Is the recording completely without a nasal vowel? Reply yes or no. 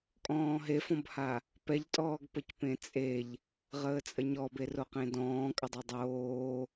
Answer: no